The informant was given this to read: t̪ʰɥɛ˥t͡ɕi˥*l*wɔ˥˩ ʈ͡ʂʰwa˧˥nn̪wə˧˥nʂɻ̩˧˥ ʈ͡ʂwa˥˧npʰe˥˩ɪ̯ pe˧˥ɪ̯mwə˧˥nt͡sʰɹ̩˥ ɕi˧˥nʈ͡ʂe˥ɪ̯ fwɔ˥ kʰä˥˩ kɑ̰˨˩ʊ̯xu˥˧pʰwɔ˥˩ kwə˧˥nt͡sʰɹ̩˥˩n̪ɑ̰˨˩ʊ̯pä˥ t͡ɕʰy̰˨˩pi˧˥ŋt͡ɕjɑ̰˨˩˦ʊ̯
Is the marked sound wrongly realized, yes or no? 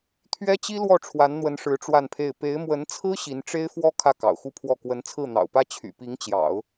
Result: no